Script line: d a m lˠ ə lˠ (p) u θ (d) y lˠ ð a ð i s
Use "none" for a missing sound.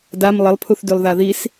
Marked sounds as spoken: pʰ, d

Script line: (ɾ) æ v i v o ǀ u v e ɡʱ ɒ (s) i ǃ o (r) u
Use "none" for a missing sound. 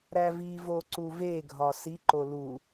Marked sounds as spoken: ɾ, s, l

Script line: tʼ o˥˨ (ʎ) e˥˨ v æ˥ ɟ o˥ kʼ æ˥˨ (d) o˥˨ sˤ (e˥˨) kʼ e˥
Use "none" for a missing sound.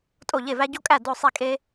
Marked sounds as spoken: ʎ, d, i˥˨

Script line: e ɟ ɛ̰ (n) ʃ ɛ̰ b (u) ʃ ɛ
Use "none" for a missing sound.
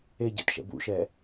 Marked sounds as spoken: t, ṵ

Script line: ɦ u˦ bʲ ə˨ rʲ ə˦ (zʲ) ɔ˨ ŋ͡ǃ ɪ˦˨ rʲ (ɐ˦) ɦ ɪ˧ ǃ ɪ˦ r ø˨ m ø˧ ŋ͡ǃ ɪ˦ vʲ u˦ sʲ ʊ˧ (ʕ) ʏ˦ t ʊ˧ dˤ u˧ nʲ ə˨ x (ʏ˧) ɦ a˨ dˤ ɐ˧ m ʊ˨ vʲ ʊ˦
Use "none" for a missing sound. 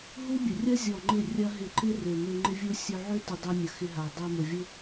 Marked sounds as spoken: zʲ, ɐ˦, ʕ, ɪ˧

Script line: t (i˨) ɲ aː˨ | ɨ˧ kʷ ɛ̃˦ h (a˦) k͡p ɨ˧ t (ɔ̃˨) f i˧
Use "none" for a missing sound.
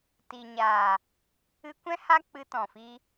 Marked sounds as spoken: i˨, a˦, ɔ̃˨

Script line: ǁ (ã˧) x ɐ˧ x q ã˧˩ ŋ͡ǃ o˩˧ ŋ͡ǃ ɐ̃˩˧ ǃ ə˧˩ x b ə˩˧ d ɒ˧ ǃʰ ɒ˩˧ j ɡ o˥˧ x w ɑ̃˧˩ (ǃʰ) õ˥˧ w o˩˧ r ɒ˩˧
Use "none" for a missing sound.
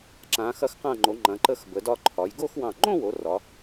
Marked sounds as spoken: ã˩˧, ŋ͡ǃ

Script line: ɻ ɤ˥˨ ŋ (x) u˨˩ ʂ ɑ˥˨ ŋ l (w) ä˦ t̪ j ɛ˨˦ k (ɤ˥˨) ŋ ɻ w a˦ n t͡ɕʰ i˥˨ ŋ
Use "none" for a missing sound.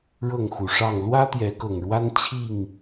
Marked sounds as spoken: x, w, ɤ˨˩

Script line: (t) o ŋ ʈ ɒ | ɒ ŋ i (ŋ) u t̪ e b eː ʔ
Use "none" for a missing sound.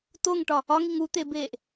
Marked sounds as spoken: t, ŋ

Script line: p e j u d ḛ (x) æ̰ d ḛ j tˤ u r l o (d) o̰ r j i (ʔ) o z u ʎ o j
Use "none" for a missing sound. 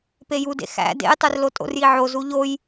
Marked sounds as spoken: x, tʼ, ʕ

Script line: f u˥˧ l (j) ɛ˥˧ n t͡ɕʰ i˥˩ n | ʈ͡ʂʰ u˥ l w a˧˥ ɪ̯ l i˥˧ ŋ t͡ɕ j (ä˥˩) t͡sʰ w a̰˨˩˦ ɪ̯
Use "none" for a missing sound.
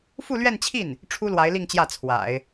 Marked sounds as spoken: ɥ, ä˥˩

